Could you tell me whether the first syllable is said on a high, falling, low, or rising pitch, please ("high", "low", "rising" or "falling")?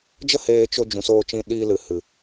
high